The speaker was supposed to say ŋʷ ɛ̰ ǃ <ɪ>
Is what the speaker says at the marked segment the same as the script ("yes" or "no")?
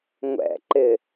yes